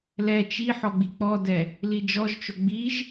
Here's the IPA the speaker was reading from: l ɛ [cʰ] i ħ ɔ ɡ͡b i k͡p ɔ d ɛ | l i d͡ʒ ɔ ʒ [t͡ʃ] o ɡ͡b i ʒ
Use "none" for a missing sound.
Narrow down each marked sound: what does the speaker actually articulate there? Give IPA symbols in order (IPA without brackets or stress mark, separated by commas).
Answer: t͡ʃ, t͡ʃ